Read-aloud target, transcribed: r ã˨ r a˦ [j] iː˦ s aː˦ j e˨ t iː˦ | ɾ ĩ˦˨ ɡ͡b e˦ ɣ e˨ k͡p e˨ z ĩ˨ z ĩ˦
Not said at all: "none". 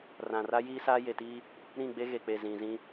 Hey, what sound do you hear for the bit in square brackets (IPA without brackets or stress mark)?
j